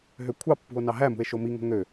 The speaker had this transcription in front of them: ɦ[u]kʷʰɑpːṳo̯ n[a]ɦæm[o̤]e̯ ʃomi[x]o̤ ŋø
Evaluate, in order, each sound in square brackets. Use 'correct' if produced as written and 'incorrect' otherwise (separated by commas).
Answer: incorrect, incorrect, incorrect, incorrect